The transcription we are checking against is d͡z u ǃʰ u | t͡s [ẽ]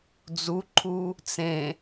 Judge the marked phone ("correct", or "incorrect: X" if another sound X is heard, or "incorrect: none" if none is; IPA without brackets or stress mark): correct